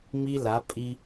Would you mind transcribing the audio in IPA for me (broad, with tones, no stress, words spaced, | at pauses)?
mi˦la˨˦ pʼi˦